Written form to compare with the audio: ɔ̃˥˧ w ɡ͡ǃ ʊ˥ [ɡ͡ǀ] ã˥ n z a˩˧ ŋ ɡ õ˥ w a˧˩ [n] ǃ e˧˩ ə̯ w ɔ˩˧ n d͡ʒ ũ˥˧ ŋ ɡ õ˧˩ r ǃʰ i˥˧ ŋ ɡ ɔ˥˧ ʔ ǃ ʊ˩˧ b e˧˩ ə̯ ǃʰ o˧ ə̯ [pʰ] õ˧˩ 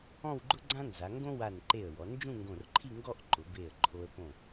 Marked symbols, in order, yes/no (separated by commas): yes, yes, no